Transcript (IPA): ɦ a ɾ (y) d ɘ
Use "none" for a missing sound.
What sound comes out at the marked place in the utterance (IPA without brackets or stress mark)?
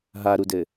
u